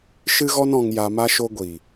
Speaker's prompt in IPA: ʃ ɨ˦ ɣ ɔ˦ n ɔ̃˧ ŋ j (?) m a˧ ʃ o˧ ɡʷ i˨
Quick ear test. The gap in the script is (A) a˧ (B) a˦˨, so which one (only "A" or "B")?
A